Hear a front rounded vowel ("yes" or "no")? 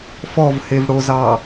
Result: no